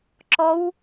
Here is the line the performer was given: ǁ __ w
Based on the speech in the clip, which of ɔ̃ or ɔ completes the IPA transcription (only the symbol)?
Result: ɔ